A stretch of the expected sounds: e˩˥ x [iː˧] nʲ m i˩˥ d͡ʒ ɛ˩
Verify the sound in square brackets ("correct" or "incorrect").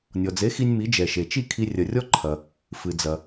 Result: incorrect